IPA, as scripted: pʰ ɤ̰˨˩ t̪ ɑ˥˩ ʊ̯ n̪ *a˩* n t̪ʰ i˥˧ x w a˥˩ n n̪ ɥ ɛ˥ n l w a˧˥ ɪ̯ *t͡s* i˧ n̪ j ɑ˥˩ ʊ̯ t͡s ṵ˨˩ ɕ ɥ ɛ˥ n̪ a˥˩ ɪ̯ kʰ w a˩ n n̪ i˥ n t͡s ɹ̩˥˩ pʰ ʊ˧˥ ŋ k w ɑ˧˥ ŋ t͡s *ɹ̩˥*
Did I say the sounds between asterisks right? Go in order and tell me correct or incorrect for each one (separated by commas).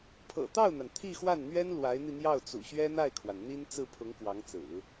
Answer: correct, incorrect, incorrect